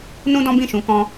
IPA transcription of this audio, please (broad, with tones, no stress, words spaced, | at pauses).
nũ˦dɔ̃˦bĩ˦˨ʃũ˨˦ kɔ̃˧